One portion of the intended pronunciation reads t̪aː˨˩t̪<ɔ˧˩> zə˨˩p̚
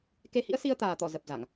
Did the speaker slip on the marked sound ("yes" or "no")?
no